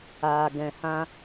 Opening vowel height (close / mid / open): open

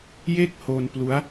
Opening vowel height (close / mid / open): mid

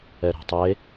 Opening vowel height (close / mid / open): mid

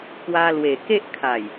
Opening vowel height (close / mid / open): open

